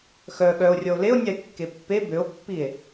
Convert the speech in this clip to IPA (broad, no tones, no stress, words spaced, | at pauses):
xœ ɠœo̯rʲɔo̯ leo̯nʲae̯ kːepːe bøo̯pːie̯